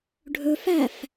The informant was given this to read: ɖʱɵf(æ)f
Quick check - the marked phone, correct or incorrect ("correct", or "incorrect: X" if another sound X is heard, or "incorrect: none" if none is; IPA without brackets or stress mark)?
correct